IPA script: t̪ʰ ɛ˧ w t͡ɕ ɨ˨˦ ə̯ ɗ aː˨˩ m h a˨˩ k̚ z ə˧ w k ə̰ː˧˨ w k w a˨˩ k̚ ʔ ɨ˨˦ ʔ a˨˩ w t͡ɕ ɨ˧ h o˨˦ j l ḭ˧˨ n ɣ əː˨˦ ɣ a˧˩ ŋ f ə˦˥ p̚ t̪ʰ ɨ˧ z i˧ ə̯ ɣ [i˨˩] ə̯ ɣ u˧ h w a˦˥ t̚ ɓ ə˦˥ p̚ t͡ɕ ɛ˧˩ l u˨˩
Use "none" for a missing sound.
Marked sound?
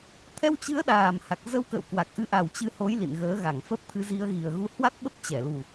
i˨˩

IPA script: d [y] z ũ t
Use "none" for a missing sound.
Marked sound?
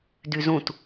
y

